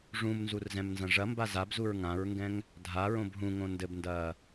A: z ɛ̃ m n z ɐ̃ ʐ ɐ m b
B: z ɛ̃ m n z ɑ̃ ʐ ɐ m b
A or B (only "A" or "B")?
A